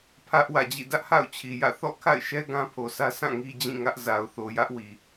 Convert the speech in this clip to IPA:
pʰ ä˦ ʔ w ä̰˦˨ d͡ʑ ḭ˦˨ d ä˦ ʔ h a̰˦˨ ʊ̯ t͡ɕʰ i˨ j ä̰˦˨ θ ɔ̰˦˨ kʰ a̰˦˨ ɪ̯ ʃ ɛ˦ ɡ ã˦ pʰ o˨ s ä˦ s ã˦˨ ŋ i˦ d͡ʑ ĩ˦˨ ŋ ä˦ ʔ z a˨ ʊ̯ θ o˨ j ä˦ ʔ w i˨

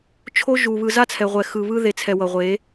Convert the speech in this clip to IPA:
t͡ʃʰ o˦ ʒ u˨ β ɯ˧ z a˦ t͡sʰ ɛ˨ ʁʷ ɛ˨ x ɯ˨ β ɯ˦ ð e˦˨ t͡sʰ ɛ˧ w ʌ˨ ʁʷ e˨˦

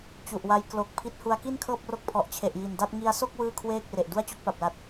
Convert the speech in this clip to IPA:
t͡ɕ u˨˩ ʔ w a˧ j k l o˨˩ k̚ pʰ i˦˥ t̚ h u˦˥ a̯ k i˥˩ n kʰ ɤː˥˩ p̚ r o˦˥ k̚ pʰ ɔ˨˩ ʔ t͡ɕʰ e˨˩ ʔ j i˨˩ n d a˥˩ t̚ ŋ i˧ a̯ s o˥˩ k̚ w ɯː˥˩ kʰ w eː˥˩ k̚ r e˨˩ ʔ d u˥˩ a̯ t͡ɕ o˦˥ k̚ p a˨˩ p̚ l a˨˩ t̚

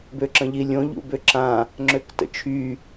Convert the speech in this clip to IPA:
b ø ǁ ə̃ ʎ i lʲ õ ʎ ṵ b ø ǁ ã | ŋ͡ǁ ø k t ə̰ t͡ʃʰ y

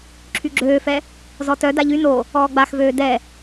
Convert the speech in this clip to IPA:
ǁʰ y ɡ͡ǁ øː f ɛ | z ɔ t œ d a ʎ y n o | ɔː ɡ͡b a x v øː d ɛ

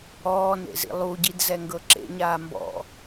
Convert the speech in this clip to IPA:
ɔː n ḛ z ḭ lˠ u ɟ i d z ɛ ŋ ɡ ɤ ǁ ḛ ɲ aː m b ɔ̰

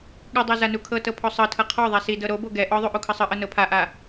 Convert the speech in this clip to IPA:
ɠ ɯ dˤ a z a n u kʰ ɤ t ɤ pʰ ɔ sˤ ɤ tʰ ɤ qʰ ɔ ðˤ ɛ s i d ɤ ɾ o b o ɡ ɛ ʔ ɔ ðˤ u ʔ u kʰ ɤ sˤ ɯ ʔ ɤ n ɤ pʰ a ʔ a

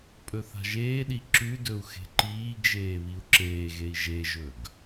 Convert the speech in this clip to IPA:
pʼ ɵ θ a̤ ʒ eː ɗ i ǁ ʉ d ɵ u̯ x e̤ ǃ iː ɡ ʒ eː β i u̯ ǁ eː ɣ e i̯ ʒ e ʒ ɵ ɡ

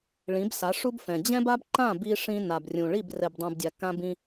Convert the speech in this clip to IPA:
ɭ ĩ˨˦ b s a˨˦ ʂ u˦ b f ɛ̃˨ d͡ʑ ɛ̃˦ b a˦ b ǃ ã˦˨ b i˦ ʂ ĩ˦ n a˨ b rʲ ũ˨ ɭ i˦˨ b r ɛ˨ b dˤ ũ˨ b dʲ a˨ k ã˦ b ĩ˦

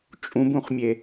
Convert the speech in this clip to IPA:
t͡ʃʼ ũ b ũ χ mʲ e

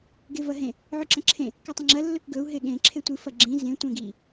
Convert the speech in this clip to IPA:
ɡ e v ɐ ɦ ẽ | ʕ ʉ ǁ ɐ̃ ǁʰ ẽ | k ɨ tˤ ɐ̃ ŋ͡ǁ ɐ lː ɵ k ɡ ɵ u̯ ɦ e ɠ ẽ ǁʰ e tʷ ɨ f ɐ ɡ͡ǁ ĩ z ẽ tʷ ẽ ɡ i

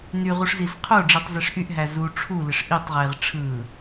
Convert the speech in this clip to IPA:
n y ʁ u ʂ z i z qʰ o ɖ͡ʐ i tˤ z e ʂ ʔ y ʔ ɦ æ z u ʈ͡ʂʰ u l ɪ ʂ ʔ i tˤ ʁ e ʁ ʈ͡ʂʰ ɯ

